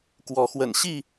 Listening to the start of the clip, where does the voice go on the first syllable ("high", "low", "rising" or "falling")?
rising